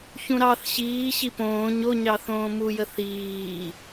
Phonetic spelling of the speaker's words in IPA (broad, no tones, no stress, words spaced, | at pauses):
çũɾɑθ ɕiː ɕipõː ɲoɲɑθõː mujə θiː